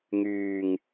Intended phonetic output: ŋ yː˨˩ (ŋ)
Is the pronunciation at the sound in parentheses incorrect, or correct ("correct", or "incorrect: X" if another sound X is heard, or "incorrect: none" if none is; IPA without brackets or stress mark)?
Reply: correct